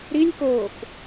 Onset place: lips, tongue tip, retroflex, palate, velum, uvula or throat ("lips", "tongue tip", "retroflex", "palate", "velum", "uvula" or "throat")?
tongue tip